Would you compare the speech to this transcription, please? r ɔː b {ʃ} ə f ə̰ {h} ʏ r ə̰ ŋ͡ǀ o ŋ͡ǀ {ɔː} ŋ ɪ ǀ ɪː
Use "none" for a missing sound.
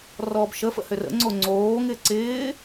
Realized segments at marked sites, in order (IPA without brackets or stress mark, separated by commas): ʃ, h, oː